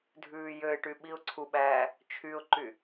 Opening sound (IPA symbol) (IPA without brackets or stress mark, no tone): dʱ